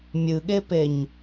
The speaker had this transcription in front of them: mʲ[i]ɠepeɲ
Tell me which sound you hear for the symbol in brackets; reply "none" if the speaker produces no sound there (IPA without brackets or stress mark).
ɨ